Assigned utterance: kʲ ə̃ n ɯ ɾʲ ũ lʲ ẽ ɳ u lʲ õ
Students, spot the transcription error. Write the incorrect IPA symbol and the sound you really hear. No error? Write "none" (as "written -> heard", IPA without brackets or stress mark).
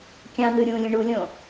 ə̃ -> ɑ̃